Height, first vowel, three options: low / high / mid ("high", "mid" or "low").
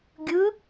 high